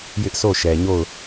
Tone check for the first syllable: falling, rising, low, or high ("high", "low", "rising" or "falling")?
high